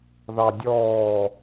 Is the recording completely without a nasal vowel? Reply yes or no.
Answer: yes